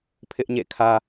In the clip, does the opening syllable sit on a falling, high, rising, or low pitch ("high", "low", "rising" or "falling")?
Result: high